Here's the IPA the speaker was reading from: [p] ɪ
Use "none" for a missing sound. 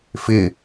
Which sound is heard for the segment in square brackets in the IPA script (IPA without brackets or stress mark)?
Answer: f